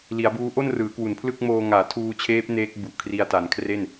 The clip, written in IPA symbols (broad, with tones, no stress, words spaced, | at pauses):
li˩˦a̯buː˦˥ ʔo˥˩nrɯː˩˦kwu˩˦npʰlɯ˥˩k̚ moː˧ ŋaː˩˦tʰuː˧t͡ɕʰeː˦˥p̚ neː˦˥k̚bu˨˩ʔkʰri˧a̯ ta˩˦nkʰre˥˩n